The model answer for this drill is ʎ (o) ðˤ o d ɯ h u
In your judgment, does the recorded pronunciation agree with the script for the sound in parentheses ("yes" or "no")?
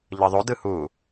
no